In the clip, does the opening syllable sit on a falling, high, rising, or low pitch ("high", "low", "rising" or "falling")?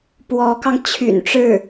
rising